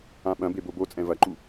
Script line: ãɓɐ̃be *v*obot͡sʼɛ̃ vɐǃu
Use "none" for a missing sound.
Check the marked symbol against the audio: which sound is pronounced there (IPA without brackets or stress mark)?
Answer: b